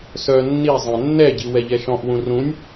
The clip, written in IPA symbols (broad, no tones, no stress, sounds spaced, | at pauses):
s œ nː i zˤ ɛ̃ nː ɛ ɟ i w ɛ ʎ ɛ ʃ ɔ̃ ʔ w ũ r ũ nʲ